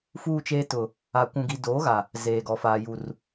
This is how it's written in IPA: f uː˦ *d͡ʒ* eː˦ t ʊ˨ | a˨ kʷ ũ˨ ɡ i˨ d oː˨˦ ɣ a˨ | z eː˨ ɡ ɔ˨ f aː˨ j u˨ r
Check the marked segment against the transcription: incorrect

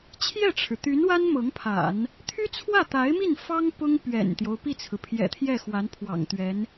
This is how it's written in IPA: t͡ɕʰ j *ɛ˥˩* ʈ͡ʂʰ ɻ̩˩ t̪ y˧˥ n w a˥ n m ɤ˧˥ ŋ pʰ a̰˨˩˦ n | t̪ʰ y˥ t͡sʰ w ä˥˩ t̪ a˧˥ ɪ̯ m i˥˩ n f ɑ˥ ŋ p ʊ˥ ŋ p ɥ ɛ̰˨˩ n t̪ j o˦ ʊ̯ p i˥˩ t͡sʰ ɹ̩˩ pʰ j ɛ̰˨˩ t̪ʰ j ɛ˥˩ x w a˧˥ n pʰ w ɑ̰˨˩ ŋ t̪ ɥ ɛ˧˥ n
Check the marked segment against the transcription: correct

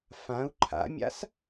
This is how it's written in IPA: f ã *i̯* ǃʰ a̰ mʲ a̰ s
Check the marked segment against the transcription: incorrect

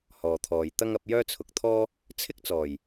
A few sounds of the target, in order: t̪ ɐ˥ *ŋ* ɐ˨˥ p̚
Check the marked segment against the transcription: correct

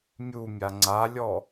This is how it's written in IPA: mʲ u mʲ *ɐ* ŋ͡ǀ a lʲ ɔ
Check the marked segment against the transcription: incorrect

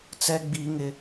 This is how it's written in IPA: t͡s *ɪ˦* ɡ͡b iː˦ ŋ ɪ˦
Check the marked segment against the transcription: incorrect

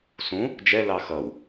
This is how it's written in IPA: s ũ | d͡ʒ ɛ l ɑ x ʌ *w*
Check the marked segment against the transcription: correct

